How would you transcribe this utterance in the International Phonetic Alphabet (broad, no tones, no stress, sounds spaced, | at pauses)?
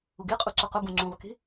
ʊ ɡ e qʼ u ǀ ʊ q ʊ b ũ ŋ͡ǀ ũ ʁ k e̤